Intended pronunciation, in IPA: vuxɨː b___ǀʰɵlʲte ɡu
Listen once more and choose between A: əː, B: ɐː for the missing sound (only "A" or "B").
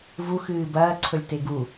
B